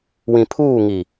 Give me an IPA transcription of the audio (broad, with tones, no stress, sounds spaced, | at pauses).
w ĩ˨ pʰ uː˦˨ ŋ i˨